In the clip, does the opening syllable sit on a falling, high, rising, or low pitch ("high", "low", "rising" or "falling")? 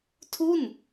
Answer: falling